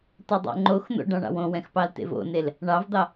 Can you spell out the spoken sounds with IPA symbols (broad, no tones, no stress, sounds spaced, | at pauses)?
t o dˤ o̰ ŋ͡ǃ o x n̪ o̰ ɖ ɑ̃ ɳ ɑ̰ w õ w ɛ̃ x p ɑ l t ḛ v o̰ n e l | ɳ ɑ v d̪ ɑ